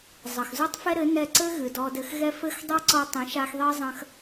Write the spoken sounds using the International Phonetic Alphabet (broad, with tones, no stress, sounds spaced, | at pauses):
zˤ ɐ˨ x z u˦ tˤ f ɛ˦ ɾ ɘ˨˦ n ɛ˧ ǀ ɘ˦ ɣ ɨ˨ d ɔ˧ d ɘ˧ x ɣ ɛ˦ f ɘ˦ x dˤ ɛ˦ ǀ ɔ˧ tˤ ĩ˨˦ ʃ a˧ x ðˤ i˦ zˤ ɐ̃˦ x